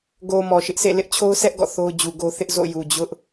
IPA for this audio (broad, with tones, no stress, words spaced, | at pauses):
ɡo˨ mɔ˨ʃɪ˦ʔsḛ˦˨ lɪ˦ʔt͡ɕʰo˦ʊ̯sʰɛ˦ʔ ɡɔ̰˦˨θo˦ʊ̯d͡ʑu˨ɡo˦ θɪ˦ʔzo̰˦˨ju˨ d͡ʑʊ˦ʔ